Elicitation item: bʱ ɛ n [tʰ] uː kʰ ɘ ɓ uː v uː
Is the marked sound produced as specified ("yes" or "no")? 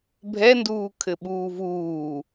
no